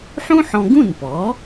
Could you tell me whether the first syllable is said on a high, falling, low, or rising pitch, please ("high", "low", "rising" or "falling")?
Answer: high